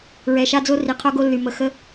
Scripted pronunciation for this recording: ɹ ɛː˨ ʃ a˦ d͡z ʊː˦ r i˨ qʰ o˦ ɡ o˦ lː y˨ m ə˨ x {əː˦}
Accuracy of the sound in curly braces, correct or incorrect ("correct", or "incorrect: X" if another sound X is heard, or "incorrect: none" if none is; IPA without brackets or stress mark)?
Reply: incorrect: ə˦